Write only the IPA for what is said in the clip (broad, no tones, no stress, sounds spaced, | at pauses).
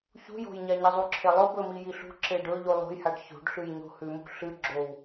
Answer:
ç ṳ j o̤ j ɲ a ɲ i zˤ u ǁʰ e lˠ ɵ b ɵ m i j i ɬ ṳ ǁ e ɖ ɵ ʎ u lˠ o̤ j h a ɖ ç o̤ ɖ ɬ ʉ j ɲ o̤ h ʉ m ṳ ɬ ɨ ɡ͡ǁ o w